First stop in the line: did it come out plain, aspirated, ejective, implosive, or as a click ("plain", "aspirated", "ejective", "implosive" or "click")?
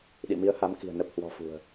implosive